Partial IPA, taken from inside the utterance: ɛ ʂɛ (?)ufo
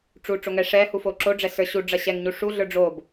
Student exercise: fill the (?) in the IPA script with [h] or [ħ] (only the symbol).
h